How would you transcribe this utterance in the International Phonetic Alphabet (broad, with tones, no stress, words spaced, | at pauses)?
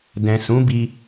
dɛ̃˨sũ˨˦bi˧